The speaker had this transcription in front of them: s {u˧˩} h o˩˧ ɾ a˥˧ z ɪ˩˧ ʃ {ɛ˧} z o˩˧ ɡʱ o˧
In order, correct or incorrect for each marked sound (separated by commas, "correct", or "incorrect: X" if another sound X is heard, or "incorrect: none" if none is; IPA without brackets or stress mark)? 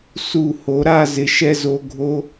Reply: correct, correct